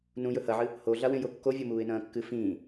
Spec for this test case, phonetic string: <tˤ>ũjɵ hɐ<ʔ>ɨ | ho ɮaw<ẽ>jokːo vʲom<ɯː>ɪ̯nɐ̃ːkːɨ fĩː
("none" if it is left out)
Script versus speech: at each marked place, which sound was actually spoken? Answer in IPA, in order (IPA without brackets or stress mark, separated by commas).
n, ʕ, ẽ, uː